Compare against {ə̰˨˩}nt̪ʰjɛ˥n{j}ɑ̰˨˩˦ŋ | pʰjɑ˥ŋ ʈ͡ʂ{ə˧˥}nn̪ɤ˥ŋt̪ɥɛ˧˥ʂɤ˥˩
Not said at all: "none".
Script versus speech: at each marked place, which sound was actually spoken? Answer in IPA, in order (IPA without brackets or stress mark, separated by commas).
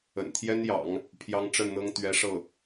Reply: ə̰˨˩, j, ə˥˩